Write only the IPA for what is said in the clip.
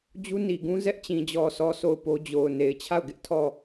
d͡ʑ u˦ n i˨ ɡ ũ˦ z ɛ˦ ʔ t͡ɕ ĩ˨ d͡ʑ ɔ˨ sʰ ɔ˨ sʰ o˦˨ ʊ̯ p o˦ d͡ʑ o˨ ʊ̯ n e˨ ɪ̯ t͡ɕʰ a˦˨ ʊ̯ ɡ ɪ˦ ʔ tʰ ɔ˦˨

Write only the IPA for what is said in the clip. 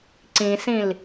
ǀ ĩ s ĩ l

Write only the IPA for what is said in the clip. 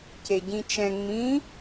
c e ɟ ĩ t͡ʃ ɛ̃ ŋ͡m ĩ

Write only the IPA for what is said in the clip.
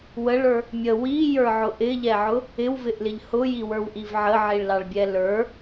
w ə ɭ ə˞ | mʲ ə w i j ə˞ ʕ ʊ ʔ ɪ ʎ ɛ ʕ ʊ | ɪ w v ɪ ʔ l ɪ ʎ h ʊ j i w ə˞ w ʔ i v ʕ ə ʕ i ɭ l ɑ ɭ bʲ ɛ l ə˞

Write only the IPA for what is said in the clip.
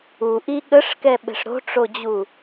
u ʔ i ɠ ə ʂ k ɛ ɓ ɛ̤ ʂ ɾ o̤ ʈ͡ʂ o d͡ʑ u

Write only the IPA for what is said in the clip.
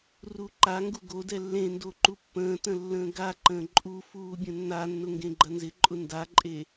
r u ǃ a ŋ ɡ u ɡ o d ɛ lː ẽ n d o ǃ u pː ə̃ː t ə̃ lː ə̃ː ɡ a ǃ ə̃ː ǃʼ u f uː bʲ ə̃ nː a nː ʊ ŋ ɡ ẽ ɡ͡ǃ ɐ n z ɪ ǃʼ ʊ n d a ǃʼ e

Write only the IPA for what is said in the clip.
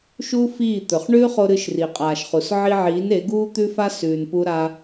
ʃ uː˦ f iː˦˨ t̪ ɵ˨ χ ɳ ʉː˦ χ o˧ ɾ ɨ˧ ʃ r i˨ qʼ aː˨ ʃ χ u˨ s ʕ i˧ ʕ iː˨˦ n e˨˦ ɡ uː˦ t̪ ʉ˦ f a˦ s ʉː˧ n p u˦ ɾ a˦

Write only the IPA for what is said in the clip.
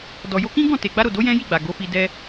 d ɔ˨ j o˧ k ĩ˦ ɡ ɔ̃˦˨ t e˨ ɡ͡b a˧ ɾ o˨ d o˨˦ j ɛ̃˦ j i˦˨ ɡ͡b a˨ ɡ o˨˦ f i˧ d ɛ˦

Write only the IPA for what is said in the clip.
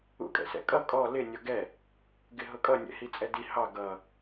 ṵ kʼ ɛ̰ s ɛ̰ kʼ ʌ kʼ ɔ l ɪ nʲ ɔ ɡ ɛ | ɡ ɪ ɦ ʊ kʼ ʌ nʲ ɛ̰ h i t͡sʼ ɛ d i h ɑ ɡ ʌ

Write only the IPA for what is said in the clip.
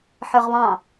ħ ə˞ ʁ β ɑ̃

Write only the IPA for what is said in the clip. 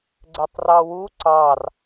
ɡ͡ǀ ɛ tˤ r ɑ w u ǀ ɑ r

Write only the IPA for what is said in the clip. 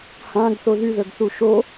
h ã ɡ θ o ð y ð ə ɡ θ u ʃ o

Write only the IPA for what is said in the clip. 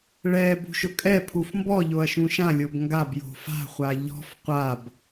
ɭ ɛ b ṳ ʃ ʊ kʼ ɛ pʰ u f m b ɔ ʎ o ɐ̯ ʃ ũ ʃ ã lʲ o b ŋ ɡ a b j o̤ f a̤ χʷ a ʎ ɔ̤ f qʷ a b

